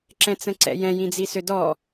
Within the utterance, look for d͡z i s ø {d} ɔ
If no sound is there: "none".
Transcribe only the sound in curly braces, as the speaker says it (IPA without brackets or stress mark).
d